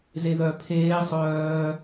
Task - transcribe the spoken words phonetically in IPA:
zeðœ pʰeː sˤœː

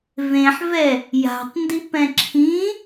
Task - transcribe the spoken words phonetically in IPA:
vẽħvɛ | ja̤tˤ ndipɛ̃ǁʰĩ

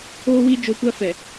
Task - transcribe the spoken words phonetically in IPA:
oː˦wi˦ d͡ʒo˨kʷa˦ fɛ˨

